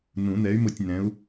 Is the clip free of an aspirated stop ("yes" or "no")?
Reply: yes